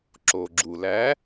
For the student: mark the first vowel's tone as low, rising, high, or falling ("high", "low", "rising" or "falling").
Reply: low